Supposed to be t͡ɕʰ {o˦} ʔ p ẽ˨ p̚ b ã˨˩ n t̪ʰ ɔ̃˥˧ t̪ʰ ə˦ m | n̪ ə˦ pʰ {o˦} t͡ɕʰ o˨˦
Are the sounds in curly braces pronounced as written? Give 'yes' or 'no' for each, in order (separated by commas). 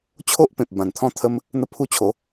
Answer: yes, no